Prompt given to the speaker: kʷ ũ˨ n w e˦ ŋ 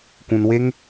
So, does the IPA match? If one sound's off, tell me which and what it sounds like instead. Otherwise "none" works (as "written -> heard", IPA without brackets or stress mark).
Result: none